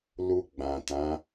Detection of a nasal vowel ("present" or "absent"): present